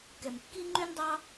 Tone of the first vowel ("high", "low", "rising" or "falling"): low